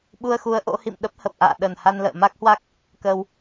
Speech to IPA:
ɓ u˧ ə̯ x u˨˦ ə̯ ʔ o̰˧˥ h ḭ˧˨ m ɗ ə˦˥ p̚ h ə˨˩ p̚ ʔ a̰ː˧˨ ɗ ə˨˩ n h a˧ n l ə̰ː˧˨ m a˦˥ k̚ h w a˦˥ k̚ | k əː˧ w

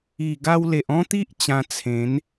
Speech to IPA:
i˨˩ ɡ a˧ w l e˨ ʔ ɔ̃˦ t̪ i˦ ʔ t͡ɕ ã˧ t͡sʰ ẽ˨˦ n

